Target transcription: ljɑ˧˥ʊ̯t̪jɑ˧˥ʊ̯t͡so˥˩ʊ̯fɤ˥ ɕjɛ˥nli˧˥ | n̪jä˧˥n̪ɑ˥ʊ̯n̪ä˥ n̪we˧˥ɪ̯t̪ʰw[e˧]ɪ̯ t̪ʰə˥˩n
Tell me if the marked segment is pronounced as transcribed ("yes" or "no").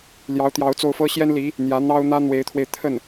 yes